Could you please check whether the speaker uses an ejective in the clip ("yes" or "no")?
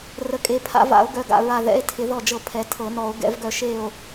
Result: yes